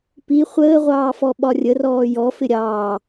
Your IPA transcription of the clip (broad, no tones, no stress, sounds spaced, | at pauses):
p i χʷ əː ʁʷ ɑː f ɔ ɓ ɒ rʲ ə r ɔː j ɔ f ɪ ɾʲ ɑː